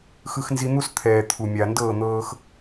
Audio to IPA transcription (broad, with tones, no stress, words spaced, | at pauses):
xɯ˦xnzi˦ n̪u˦st̪ʰɛː˨ t̪ʰu˨mʲa˨ ndɤː˦˨n̪ɤː˧x